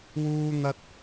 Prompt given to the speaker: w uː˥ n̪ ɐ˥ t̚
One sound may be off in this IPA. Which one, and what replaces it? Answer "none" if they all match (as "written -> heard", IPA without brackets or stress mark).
none